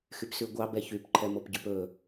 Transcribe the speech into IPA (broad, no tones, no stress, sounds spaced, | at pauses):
x y p s ʉ ɡʷ ɑ b ɛ ç y p ǃʰ ɛ m o p ɟ ʉ p ɵ